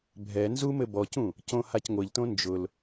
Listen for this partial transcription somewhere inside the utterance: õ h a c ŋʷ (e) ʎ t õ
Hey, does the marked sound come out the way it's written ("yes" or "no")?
no